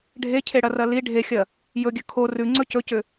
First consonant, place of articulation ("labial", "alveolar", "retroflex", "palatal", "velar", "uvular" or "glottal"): retroflex